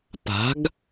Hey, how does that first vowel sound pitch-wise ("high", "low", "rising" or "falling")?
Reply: rising